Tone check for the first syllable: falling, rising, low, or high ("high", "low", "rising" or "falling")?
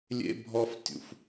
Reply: high